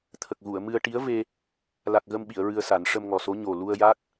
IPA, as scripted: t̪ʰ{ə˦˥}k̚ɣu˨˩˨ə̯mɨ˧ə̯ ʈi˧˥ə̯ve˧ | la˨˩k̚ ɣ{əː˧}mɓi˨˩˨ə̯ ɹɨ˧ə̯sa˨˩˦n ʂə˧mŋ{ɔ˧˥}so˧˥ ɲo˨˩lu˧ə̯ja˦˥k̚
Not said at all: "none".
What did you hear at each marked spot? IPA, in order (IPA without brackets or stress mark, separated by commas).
ə˨˩, ə˧, ɔ˨˩